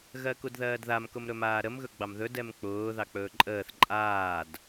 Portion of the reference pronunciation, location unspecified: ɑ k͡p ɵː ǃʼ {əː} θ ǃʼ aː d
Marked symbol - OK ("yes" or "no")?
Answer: yes